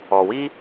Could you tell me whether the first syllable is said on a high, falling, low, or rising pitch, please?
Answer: low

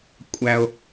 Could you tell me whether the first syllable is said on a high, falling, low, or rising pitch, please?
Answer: high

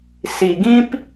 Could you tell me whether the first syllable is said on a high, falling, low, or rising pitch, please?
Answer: low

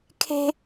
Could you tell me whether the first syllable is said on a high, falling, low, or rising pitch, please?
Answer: high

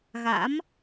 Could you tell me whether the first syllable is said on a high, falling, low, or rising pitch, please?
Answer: rising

